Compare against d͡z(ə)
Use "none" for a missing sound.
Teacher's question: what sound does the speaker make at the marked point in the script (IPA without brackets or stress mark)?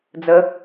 ə